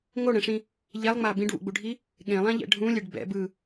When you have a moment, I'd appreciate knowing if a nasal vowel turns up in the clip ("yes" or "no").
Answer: yes